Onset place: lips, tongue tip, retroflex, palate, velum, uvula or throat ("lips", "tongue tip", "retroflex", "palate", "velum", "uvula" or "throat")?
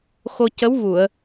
velum